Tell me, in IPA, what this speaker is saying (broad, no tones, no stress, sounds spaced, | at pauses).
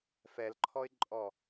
f ɛ l ǃʰ ɔ ɪ̯ ǃʼ ɔ